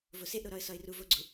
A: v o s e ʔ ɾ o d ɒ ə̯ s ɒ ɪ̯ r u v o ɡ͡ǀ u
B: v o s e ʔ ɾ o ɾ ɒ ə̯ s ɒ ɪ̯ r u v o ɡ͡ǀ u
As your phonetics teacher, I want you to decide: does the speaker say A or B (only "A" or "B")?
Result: B